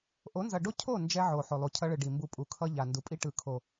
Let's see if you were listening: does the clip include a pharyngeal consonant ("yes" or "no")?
yes